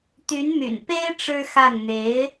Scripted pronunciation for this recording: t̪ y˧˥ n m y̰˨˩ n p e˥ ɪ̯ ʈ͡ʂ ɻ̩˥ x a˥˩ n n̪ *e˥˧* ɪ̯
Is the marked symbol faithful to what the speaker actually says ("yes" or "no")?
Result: no